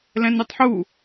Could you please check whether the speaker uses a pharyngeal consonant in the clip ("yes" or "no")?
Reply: yes